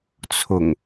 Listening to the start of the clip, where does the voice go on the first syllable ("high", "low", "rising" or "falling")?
low